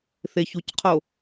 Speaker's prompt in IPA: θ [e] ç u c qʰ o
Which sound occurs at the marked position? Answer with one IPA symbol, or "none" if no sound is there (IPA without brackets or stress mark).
e